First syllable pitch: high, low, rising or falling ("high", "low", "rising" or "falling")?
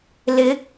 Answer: rising